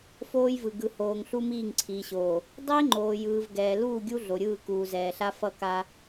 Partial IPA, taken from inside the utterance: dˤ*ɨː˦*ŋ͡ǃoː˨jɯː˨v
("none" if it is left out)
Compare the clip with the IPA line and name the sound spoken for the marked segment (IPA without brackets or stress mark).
iː˦